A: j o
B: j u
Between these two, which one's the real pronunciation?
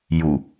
B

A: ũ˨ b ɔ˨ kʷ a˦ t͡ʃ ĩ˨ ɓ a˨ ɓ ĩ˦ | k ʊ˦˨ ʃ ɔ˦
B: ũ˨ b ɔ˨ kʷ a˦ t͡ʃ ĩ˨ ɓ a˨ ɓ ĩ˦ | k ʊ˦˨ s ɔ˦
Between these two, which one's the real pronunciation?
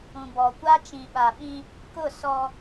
B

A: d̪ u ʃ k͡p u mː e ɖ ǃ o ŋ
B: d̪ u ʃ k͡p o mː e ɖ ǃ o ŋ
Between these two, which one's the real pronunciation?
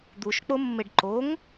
B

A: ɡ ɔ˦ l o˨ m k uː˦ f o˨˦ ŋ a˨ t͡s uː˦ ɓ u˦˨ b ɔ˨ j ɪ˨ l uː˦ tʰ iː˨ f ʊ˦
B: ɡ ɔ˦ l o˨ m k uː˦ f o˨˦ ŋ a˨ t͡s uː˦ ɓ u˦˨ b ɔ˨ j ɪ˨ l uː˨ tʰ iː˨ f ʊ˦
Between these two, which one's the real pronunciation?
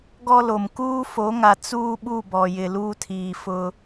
A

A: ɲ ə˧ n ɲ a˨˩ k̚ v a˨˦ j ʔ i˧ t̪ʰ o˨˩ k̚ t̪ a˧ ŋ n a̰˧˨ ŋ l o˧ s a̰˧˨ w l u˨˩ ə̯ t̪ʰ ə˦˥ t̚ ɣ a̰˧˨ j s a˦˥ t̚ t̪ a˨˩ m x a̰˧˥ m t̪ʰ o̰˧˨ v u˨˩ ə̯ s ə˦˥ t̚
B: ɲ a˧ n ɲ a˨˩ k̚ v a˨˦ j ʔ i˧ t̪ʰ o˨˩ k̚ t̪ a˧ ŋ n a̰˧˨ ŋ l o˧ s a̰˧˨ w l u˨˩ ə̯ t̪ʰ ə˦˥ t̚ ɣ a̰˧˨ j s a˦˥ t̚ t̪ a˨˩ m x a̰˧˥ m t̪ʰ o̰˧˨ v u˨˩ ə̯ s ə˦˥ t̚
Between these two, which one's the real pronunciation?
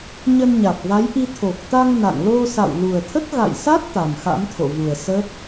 A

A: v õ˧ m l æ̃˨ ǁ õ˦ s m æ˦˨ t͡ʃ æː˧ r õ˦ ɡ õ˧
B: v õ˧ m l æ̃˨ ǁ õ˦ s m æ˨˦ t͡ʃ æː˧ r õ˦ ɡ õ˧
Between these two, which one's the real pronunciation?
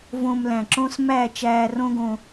A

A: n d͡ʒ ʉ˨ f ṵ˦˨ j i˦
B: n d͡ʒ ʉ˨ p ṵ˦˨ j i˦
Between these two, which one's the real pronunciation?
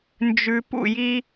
B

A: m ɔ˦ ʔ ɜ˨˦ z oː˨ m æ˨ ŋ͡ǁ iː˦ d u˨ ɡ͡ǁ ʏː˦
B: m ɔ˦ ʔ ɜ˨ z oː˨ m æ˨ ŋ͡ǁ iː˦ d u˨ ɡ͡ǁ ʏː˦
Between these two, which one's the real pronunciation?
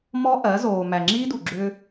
A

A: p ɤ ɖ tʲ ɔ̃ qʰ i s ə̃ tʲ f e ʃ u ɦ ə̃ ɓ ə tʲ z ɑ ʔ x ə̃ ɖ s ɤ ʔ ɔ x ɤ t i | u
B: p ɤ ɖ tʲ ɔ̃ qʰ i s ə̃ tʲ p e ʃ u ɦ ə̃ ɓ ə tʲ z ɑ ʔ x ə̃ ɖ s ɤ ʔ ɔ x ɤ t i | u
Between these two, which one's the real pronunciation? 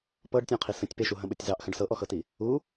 B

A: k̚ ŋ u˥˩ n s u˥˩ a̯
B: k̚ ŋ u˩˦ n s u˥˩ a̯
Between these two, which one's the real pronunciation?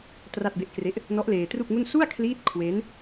A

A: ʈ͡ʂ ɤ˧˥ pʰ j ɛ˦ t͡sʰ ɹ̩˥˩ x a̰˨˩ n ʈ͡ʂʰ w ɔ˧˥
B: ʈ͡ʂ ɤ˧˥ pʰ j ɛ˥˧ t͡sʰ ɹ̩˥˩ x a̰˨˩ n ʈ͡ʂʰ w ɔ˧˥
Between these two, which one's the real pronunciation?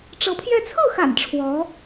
B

